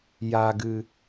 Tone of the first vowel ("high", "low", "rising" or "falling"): low